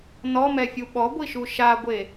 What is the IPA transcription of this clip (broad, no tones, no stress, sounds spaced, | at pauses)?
n ɔ m ɛ fʲ u ɓ ɔ ɡʷ i ʃ u ʃ a ɡʷ e